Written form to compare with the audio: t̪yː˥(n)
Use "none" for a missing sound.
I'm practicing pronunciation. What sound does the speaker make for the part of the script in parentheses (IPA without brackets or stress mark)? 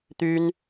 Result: n